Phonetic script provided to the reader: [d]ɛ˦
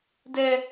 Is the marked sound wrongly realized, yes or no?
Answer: no